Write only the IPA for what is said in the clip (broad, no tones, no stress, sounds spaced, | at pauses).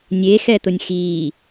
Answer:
nʲ e x ɛ t̪ ʊ nʲ x iː